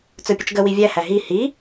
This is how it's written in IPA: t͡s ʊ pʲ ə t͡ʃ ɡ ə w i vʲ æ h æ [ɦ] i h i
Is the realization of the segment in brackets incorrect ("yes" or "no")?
no